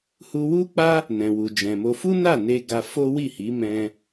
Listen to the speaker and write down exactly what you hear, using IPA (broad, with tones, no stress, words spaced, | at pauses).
hu˧wu˦k͡pa˦ | nɛ̃˨wu˨d͡ʒɛ̃˨mo˧ fu˦na˦˨ne˧ ɡa˧ fo˦wi˦˨hi˨˦ mɛ̃˧